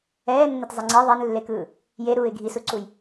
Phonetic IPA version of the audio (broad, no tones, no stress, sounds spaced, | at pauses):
ɛː nː e t zˤ e ŋ͡ǀ e ðˤ e n lː e k ɯː | j e ɾ uː ɪ̯ ɡʱ i s u ǀ u j